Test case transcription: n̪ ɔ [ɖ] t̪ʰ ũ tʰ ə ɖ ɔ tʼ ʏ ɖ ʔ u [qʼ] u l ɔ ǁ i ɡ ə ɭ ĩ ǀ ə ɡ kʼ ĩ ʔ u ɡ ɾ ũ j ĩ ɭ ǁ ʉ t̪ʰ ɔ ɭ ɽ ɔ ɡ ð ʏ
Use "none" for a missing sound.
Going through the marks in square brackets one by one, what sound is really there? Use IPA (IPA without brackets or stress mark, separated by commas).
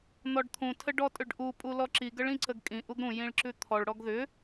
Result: ɖ, pʼ